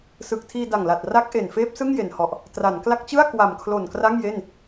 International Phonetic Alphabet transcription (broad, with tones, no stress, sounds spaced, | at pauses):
s ɯ˨˩ k̚ tʰ iː˧ d a˨˩ ŋ l a˨˩ t̚ r a˦˥ k̚ ʔ e˨˩ n f eː˦˥ p̚ s ɯ˥˩ ŋ j e˨˩ n h ɔ˨˩ ʔ | t r a˩˦ n k l a˦˥ k̚ t͡ɕ ɯ˥˩ a̯ k w a˨˩ m kʰ l o˨˩ n k r a˥˩ ŋ j e˥˩ n